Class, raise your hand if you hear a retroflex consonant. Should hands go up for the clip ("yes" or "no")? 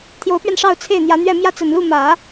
yes